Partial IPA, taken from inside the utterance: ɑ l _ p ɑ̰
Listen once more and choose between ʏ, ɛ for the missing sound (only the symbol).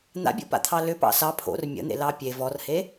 ʏ